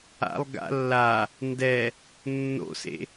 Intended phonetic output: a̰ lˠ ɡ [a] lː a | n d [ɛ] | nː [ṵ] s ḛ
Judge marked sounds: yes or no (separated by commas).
no, yes, no